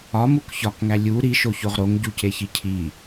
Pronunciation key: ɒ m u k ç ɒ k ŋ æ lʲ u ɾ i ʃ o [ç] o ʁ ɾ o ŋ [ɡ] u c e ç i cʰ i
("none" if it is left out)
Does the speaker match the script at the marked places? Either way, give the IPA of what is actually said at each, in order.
ç, ɟ

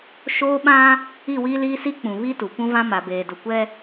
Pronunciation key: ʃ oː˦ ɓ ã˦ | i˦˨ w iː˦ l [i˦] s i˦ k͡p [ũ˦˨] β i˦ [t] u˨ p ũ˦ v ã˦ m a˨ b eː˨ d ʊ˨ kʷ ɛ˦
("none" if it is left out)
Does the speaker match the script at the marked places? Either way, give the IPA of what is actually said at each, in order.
iː˦, ũ˨, t

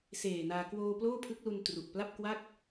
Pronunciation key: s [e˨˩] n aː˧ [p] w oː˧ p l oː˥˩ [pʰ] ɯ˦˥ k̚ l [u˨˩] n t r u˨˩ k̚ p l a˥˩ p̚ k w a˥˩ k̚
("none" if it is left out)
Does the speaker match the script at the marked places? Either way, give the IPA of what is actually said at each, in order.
eː˨˩, k, pʰ, u˧

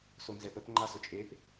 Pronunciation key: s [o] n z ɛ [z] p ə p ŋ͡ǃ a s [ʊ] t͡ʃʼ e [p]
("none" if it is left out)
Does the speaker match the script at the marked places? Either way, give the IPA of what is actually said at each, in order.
o, none, ʊ, p

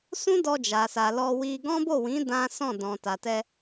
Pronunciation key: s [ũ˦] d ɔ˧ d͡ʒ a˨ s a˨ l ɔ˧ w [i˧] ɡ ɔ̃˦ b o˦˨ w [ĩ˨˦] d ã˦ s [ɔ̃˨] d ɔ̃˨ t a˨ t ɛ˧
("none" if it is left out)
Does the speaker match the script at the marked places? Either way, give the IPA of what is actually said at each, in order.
ũ˦, i˧, ĩ˨˦, ɔ̃˦˨

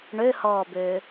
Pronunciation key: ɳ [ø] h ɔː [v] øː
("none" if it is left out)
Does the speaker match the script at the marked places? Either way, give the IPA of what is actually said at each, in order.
ø, b

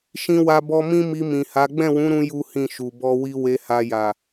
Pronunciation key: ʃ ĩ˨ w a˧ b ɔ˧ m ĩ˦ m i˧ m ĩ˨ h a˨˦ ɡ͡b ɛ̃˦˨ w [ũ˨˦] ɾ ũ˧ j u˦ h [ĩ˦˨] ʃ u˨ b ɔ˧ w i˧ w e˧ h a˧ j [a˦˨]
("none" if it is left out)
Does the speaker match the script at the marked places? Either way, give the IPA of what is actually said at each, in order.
ũ˨˦, ĩ˦˨, a˨

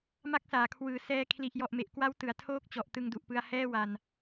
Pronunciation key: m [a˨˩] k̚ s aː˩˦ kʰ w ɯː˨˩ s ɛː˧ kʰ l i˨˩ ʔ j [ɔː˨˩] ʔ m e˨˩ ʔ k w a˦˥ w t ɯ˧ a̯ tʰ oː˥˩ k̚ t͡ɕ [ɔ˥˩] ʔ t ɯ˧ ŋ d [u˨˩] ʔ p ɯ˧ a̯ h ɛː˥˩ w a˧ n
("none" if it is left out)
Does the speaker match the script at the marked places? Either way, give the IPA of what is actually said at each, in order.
a˥˩, ɔ˨˩, ɔ˨˩, u˨˩

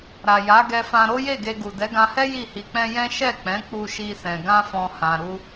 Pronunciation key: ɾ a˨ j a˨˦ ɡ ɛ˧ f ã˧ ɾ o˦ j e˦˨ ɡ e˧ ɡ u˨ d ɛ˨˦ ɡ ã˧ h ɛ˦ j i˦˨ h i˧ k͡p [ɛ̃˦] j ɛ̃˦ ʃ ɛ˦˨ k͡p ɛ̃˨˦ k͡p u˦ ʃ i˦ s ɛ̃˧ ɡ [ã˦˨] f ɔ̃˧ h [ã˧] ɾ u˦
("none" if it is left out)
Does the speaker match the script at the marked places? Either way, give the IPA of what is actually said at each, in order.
ɛ̃˦, ã˦, ã˧

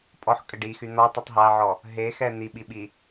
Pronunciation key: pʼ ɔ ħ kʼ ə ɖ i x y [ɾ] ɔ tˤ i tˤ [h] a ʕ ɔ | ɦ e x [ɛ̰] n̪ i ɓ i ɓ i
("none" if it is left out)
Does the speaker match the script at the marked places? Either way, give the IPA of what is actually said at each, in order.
n̪, ɦ, ɛ

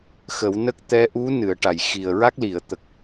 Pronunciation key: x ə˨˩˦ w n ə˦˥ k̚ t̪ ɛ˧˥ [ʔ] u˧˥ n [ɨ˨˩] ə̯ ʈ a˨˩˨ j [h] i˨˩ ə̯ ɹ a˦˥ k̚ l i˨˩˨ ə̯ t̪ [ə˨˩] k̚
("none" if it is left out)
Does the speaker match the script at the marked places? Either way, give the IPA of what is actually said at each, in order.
ʔ, ɨ˨˩˨, x, ə˨˩

